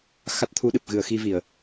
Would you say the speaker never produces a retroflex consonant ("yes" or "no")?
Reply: yes